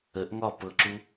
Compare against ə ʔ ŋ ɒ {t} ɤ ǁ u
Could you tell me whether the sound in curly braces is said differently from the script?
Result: yes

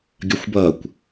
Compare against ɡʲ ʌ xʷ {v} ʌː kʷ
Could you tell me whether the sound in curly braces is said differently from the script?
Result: yes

